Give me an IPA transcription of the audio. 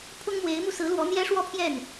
pʰ ʊ˥ ŋ m w e˧˥ ɪ̯ m u˧ s ɹ̩˧˥ l w ɔ˧˥ n̪ j ɛ˥ ʂ w ɔ˥˧ pʰ j ɛ˥˩ n

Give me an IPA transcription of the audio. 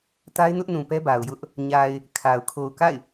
t a˦ ɪ̯ n ʊ˦ ʔ n ũ˨ p ɛ˦ b a˨ ʊ̯ j ʊ˦ ʔ | ɲ a˨ ɪ̯ | kʰ a˨ ʊ̯ kʰ o˨ ʊ̯ k a̰˦˨ ɪ̯

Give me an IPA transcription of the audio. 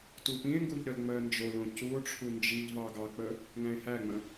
t u p ĩ e̯ ŋ ɡ u ʎ ɾ ə l ŋ͡m ɜ n d͡ʒ o l õ c u o̯ ʈ͡ʂʰ u n d͡ʒ i ʎ v ɑ ɡ ɑ k͡p ə | ŋ æ̃ e̯ h æ ŋ͡m ə̃

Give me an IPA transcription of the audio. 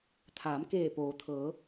t̪ʰ aː˩˧ m k eː˧˩ p oː˩ t̪ʰ ɤː˩˧

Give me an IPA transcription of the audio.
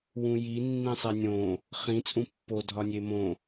w ũ j i nː ĩ sˤ e nʲ õ | χ ĩ t͡sʼ ũ pː o dʱ ɒ nʲ e m õ

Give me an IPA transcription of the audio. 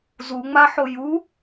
z u ŋ͡m a ħ o j u

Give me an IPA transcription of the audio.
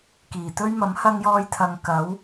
k iː˨˩ t̪ ɵ˥ ɥ m ɐ˨˥ m h ɐ˥ ŋ j ɔː˥ j t̪ʰ ɐ˧ ŋ k ɐ˨˥ w

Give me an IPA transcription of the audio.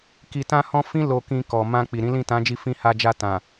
k i˧ t ã˦ h ɔ̃˦ f ĩ˦ l o˧ k ĩ˧ k ɔ˨ m ã˧ k͡p i˨ ɾ ĩ˨˦ l ĩ˦˨ t ã˨˦ d͡ʒ i˧ f ĩ˧ h a˧ d͡ʒ a˧ t ã˨

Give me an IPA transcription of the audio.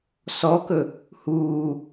s ɔ k ɵ | h uː

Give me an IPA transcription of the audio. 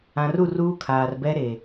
ã˨ r u˦˨ r uː˦ kʰ aː˨ r b ɛ˦ ɾ e˨

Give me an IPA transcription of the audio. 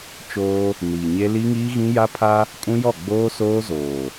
t͡ʃ oː˦ | n iː˨ ɲ e˦ l i˦ ŋ iː˦ ɣ ĩ˦ j a˦ pʰ a˦ | kʼ ũ˦ j ɔ˦˨ ɡ͡b oː˦ s oː˦ z oː˨

